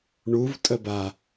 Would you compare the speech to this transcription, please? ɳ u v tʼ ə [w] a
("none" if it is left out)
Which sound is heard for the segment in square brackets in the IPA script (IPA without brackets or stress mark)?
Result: b